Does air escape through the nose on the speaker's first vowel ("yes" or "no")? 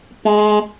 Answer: yes